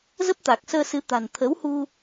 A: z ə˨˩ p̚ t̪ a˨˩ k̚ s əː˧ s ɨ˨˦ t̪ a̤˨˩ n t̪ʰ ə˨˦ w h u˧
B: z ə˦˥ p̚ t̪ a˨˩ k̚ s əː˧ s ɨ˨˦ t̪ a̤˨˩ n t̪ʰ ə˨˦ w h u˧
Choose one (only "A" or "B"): B